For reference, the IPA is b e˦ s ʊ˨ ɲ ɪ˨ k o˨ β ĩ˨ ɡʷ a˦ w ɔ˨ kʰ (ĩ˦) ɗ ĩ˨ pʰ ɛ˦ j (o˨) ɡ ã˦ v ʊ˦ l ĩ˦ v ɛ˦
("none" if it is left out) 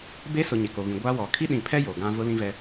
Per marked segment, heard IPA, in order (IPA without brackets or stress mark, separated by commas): i˦, o˨